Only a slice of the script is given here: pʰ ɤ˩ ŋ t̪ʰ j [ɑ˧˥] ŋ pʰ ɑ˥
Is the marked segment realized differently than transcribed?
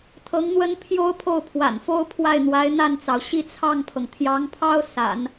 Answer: no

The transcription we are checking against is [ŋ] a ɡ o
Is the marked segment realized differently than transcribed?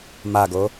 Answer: yes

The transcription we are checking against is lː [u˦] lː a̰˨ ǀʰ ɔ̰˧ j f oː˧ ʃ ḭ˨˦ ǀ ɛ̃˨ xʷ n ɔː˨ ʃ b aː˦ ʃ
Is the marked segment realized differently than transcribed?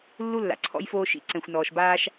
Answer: no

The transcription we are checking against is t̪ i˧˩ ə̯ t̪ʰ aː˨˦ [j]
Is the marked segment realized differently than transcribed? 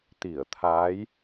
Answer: no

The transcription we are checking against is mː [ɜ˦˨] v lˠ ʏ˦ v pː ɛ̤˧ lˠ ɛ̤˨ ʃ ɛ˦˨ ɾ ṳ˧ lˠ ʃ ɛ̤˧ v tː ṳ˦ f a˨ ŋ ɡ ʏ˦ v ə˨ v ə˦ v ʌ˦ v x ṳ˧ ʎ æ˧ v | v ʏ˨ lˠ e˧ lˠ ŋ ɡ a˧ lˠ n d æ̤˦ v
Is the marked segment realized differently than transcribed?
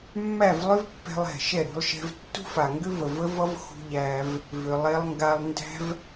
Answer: yes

